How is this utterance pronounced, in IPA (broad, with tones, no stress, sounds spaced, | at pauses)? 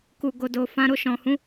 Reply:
k u˨ ɡ o˨ d o˨ f ã˨˦ ɾ o˧ ʃ ɔ̃˨ h ũ˨˦